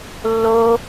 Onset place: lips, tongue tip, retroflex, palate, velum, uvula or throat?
tongue tip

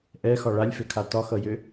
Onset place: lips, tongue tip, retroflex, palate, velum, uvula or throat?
throat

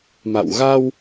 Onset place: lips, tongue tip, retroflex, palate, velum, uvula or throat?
lips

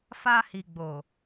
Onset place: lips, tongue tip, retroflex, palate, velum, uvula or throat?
lips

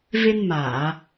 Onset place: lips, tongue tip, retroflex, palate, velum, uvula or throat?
lips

